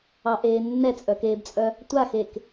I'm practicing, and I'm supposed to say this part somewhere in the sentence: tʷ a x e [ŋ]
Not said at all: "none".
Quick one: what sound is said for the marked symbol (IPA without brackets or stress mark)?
k